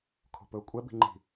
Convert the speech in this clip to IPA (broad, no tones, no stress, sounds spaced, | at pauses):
kʰ o̤ p ɵː kʷʼ ɛ b i̤ ŋ͡ǃ i̤